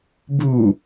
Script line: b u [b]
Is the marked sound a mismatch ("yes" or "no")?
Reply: yes